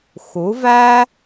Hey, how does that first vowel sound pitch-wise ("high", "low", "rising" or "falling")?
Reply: rising